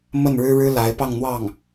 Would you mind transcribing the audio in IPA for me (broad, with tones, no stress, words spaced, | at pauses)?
mə˥˩nɻɻ̩˥ ɻɻ̩˥la˧˥ɪ̯ pɑ˥˧ŋn̪wɑ˥˩ŋ